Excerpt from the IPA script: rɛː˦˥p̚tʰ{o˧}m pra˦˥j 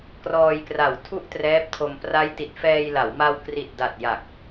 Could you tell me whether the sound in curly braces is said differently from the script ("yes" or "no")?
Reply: no